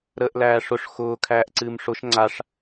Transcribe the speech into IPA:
ɾ əː ʔ l æː ʂ ʊ ʂ x ʊː kʰ æː ʔ ǀ ɨː m ʂ ʊ ʃ ŋ͡ǀ a ʂ

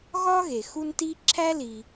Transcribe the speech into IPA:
ɣ ɒ˥ ɣ e˩ x u˦ n t i˥ ǁʰ æ˥ l i˩

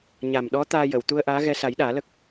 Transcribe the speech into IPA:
ɲ a˨˩ m ɗ ɔ˧˥ t̪ aː˧ j ə˨˩˨ w t̪ u˧ ə̯ ʔ aː˧˥ ɣ ɛ˧ s a˨˩˦ j ɗ aː˨˩˦ l ə˦˥ k̚

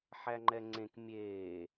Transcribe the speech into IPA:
ħ æ ŋ͡ǃ ɛ ŋ͡ǀ ẽ k mʲ eː

